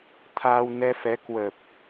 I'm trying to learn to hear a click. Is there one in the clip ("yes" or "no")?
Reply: no